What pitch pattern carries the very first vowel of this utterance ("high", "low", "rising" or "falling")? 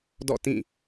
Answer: falling